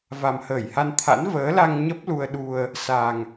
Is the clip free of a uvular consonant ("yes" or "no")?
yes